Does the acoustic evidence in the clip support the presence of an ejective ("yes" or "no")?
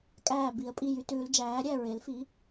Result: yes